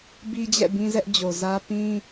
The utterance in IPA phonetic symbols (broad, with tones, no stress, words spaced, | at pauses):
bi˦d͡ʑɛ̰˦˨ bĩ˦zɛ˦ʔd͡ʑo˨ zä˦ pĩ˦